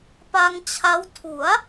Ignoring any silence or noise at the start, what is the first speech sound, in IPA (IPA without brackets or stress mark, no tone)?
p